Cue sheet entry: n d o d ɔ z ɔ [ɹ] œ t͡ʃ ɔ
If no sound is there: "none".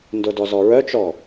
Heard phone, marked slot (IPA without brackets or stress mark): ɹ